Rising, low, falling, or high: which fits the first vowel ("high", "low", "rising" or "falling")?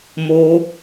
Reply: high